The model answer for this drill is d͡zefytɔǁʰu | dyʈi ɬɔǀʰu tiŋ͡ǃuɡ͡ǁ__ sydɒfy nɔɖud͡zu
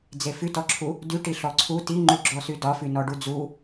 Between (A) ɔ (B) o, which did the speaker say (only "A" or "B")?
A